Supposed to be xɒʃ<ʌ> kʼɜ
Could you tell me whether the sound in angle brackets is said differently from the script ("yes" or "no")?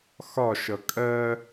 no